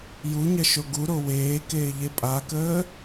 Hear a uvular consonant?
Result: no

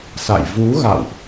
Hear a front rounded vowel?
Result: no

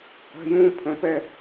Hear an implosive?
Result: no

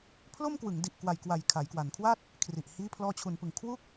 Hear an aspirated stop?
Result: yes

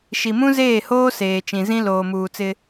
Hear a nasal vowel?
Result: yes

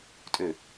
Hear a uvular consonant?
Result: no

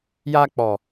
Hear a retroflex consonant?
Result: no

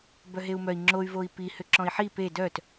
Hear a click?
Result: yes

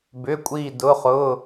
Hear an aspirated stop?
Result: no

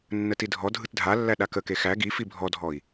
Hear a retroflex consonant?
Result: no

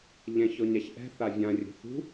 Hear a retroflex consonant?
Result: no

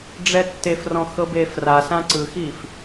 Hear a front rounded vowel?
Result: no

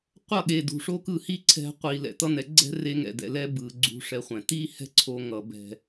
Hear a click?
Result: yes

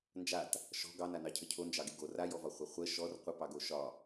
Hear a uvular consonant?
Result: yes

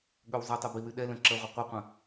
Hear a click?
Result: yes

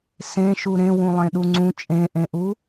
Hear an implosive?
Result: yes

